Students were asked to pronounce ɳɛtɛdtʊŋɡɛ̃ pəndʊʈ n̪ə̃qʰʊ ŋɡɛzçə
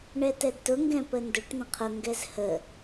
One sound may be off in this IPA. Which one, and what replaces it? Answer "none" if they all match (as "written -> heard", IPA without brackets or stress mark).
ç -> h